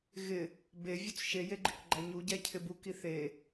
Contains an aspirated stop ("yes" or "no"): yes